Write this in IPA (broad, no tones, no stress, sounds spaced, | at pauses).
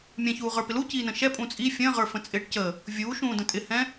mʲ ɛ̃ ç uː ʁ ə˞ p ɪ l u c iː n ə̃ ʃ ɛ pʼ ũ t͡sʼ i fʲ ə̃ː ʁ ə˞ f ə̃ t͡sʼ ɪː ʈ c ə | vʲ uː ʃ ũː d ə̃ tʼ ɪ h ɛ̃